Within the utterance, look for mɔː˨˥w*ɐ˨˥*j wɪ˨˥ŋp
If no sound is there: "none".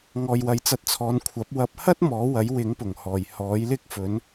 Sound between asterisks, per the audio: ɐ˨˥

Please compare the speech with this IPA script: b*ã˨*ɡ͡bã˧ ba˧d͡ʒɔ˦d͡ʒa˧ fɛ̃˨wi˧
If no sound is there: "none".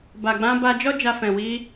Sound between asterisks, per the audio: a˨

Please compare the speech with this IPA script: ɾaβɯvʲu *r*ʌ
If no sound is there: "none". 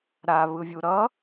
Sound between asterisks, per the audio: ɾ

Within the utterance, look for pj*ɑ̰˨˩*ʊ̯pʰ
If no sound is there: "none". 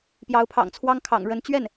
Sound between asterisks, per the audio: ɑ˧˥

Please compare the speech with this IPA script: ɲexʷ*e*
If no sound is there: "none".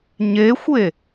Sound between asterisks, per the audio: e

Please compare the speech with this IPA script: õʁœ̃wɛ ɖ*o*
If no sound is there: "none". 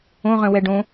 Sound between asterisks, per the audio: õ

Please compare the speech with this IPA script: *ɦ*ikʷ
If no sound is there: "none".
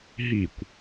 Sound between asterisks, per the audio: ɦ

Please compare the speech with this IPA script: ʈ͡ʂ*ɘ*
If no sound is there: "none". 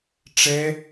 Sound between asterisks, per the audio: ɛ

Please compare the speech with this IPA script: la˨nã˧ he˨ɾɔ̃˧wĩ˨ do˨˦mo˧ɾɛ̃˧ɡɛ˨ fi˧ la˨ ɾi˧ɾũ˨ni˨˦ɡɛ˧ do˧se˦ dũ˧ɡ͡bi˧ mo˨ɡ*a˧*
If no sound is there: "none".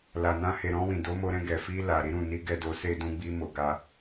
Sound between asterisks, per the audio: a˧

